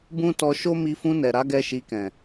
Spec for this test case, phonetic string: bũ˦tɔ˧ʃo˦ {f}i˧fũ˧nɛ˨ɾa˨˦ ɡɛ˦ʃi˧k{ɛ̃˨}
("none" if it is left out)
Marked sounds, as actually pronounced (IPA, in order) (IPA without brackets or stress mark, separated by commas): m, ɛ̃˨